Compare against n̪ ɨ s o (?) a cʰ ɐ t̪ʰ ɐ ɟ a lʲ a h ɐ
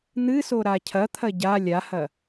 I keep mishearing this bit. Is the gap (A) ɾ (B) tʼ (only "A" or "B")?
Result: A